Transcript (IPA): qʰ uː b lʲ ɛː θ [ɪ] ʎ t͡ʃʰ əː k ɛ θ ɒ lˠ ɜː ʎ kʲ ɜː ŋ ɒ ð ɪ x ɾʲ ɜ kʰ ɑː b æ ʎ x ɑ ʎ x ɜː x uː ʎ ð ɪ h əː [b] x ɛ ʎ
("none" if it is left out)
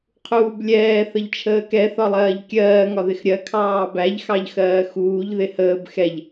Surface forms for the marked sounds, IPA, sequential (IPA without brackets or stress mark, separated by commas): ə, b